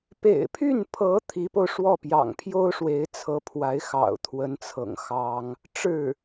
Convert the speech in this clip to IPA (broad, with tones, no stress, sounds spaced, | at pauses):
p ḛ˨˩ ɪ̯ pʰ y˥˩ n pʰ ɤ˧˥ t̪ʰ i˧˥ p o˧ ʊ̯ ʂ w ɔ˥˩ p j ɑ̰˨˩ ŋ pʰ j o˥ ʊ̯ ʂ w e˧˥ ɪ̯ t͡sʰ ɤ˧˥ pʰ w a˧˥ ɪ̯ x ɑ̰˨˩ ʊ̯ t̪ʰ w ə˧˥ n t͡sʰ ɤ̰˨˩ ŋ x ɑ˥ ŋ | ʈ͡ʂ ɻ̩˥˩